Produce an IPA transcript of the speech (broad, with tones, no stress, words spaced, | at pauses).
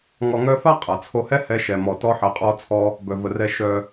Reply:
ŋɔ˧ŋœ˦ fa˦ qʼa˨t͡sʰo˧hɛ˦ hɛ˦ʃɛ˧mɔ˧ tɔ˦ħɛ˧qʼɔ˦t͡sʰɔ˦ | bœ˧və˧rɛ˦ ʃœ˧